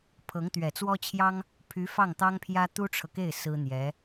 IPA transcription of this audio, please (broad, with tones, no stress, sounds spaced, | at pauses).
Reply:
pʰ ɤ˧˥ ŋ t̪ ɥ ɛ˨˩ t͡s w ɔ˥ t͡ɕʰ j ɑ˥ ŋ | pʰ y˧˥ f ɑ˥˩ ŋ t̪ ɑ˥ ŋ pʰ j ä˥ t̪ u˥ ʈ͡ʂʰ ɤ˨ k e˥˩ ɪ̯ s ɹ̩˥ n̪ j ɛ˧˥